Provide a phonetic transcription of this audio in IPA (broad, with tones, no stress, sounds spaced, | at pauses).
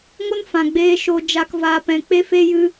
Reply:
ŋ o˧ n f ã˨ ɡ͡b eː˧ ʃ o˨ d͡ʒ a˨ k v aː˨ p ɛ̃˨ k͡p e˧ f e˧ j ɨ˧